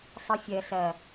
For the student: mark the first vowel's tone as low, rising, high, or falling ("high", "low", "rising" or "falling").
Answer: high